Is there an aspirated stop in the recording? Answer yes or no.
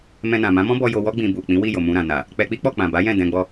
no